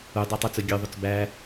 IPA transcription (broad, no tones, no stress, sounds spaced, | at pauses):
u dˤ æ tˤ u t͡s ɵ ɡʲ ø ðˤ ɵ t͡s b æ